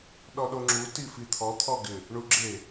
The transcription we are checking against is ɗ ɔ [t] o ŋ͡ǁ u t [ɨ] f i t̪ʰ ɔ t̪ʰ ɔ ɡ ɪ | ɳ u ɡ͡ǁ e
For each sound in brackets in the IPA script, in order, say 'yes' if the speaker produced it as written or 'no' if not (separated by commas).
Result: no, no